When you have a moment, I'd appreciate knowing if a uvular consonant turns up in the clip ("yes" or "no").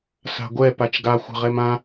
yes